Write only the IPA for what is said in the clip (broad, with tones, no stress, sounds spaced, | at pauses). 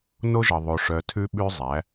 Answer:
n o˦ ʒ ʌ˨ ðˤ o˨ ʂ œ˨ tʰ ʉ˦ ɓ ʉ˦ zˤ æ˨˦